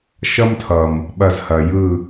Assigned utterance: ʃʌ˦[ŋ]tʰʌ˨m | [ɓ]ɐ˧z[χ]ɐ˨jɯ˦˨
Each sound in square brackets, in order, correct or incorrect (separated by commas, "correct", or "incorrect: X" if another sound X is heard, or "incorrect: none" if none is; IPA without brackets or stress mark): incorrect: m, correct, incorrect: h